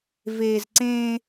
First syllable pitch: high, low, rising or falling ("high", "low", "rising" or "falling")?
low